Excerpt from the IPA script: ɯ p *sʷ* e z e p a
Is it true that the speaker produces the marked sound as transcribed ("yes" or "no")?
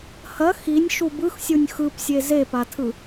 no